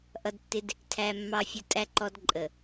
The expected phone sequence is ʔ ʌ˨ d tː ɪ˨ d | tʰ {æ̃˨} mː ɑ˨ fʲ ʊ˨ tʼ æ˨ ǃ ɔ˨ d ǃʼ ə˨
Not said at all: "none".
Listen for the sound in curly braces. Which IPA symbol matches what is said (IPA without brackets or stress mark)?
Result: æ˨